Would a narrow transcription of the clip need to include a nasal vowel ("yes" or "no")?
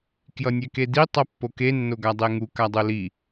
no